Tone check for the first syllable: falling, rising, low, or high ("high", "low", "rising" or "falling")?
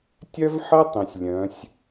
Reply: high